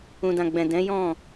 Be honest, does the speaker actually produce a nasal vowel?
yes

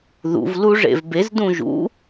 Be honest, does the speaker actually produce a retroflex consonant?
yes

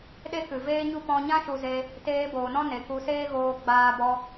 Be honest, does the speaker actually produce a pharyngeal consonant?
no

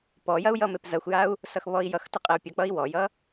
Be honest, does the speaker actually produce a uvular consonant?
yes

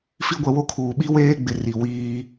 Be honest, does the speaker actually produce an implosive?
yes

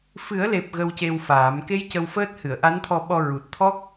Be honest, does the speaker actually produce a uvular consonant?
no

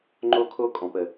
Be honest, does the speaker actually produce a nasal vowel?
yes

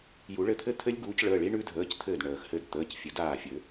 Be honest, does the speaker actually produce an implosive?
no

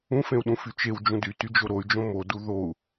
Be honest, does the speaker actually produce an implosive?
yes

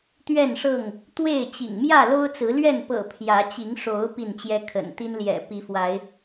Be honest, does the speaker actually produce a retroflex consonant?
yes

